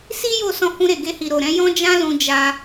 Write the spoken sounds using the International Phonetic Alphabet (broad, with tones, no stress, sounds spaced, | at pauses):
s i˦ j o˦˨ s ɔ̃˧ h ũ˧ ɾ e˨ ɡ e˧ h i˨ ɾ o˨ ɾ ɛ̃˨˦ j ɔ̃˦ d͡ʒ ã˦ l ũ˧ d͡ʒ a˧